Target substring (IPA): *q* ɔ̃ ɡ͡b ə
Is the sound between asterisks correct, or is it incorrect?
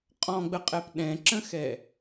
incorrect